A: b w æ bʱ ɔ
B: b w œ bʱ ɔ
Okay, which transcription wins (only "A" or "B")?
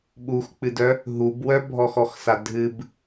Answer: B